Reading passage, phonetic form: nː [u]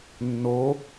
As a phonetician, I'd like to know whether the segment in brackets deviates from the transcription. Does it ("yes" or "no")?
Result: yes